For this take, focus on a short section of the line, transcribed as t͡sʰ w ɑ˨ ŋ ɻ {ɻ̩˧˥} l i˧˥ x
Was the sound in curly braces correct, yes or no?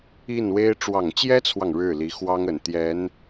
no